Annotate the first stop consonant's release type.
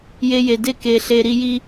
plain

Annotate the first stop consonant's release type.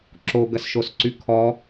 click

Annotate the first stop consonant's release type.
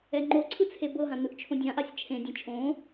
click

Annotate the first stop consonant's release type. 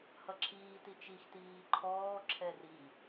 click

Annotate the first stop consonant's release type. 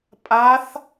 ejective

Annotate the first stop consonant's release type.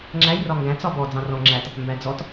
click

